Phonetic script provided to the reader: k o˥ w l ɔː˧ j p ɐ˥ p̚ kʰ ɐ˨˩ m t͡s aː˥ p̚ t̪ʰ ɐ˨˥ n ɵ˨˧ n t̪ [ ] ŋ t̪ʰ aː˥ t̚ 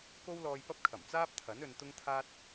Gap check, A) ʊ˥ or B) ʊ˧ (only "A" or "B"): A